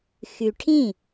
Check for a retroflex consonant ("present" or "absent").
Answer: present